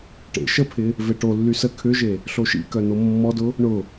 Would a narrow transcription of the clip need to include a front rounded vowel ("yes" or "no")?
yes